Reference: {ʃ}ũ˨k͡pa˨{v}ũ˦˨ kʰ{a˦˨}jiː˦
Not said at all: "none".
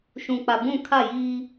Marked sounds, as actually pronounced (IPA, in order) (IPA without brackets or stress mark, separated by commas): ʃ, b, a˦˨